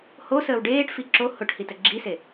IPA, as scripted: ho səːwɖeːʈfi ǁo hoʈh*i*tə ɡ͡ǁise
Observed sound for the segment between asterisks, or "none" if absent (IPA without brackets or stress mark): i